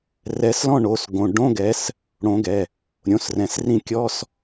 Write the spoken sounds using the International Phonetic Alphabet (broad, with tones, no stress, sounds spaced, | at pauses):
r ɛ˨˦ s l ɔ̃˥˨ ɳ o˩˧˩ s ɡ õ˩˧˩ ɖ õ˧˥˧ ɡ ɛ˨˦ s | ɽ õ˨˦ ɡ ɛ˩˧˩ | ɾʲ õ˩˧˩ s r ɛ̃˩˧˩ s r ĩ˥˨ kʲ ɔ˧˥˧ s